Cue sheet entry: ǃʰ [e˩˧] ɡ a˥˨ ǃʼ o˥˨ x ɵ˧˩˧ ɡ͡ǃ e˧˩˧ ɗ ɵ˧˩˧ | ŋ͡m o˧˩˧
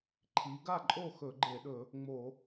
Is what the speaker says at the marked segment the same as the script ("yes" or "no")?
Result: no